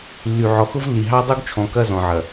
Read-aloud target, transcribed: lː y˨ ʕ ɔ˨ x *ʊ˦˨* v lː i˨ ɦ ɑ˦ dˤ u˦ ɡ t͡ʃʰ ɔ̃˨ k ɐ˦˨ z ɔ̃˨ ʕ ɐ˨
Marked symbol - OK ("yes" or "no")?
no